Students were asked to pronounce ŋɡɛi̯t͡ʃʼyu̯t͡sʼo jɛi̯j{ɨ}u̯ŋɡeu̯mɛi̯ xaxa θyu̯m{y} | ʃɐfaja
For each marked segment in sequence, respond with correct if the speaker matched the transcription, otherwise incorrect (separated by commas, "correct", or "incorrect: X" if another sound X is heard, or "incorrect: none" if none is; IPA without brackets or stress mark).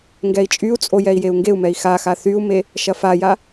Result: incorrect: e, incorrect: e